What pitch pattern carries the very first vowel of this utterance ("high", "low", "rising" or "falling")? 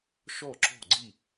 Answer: falling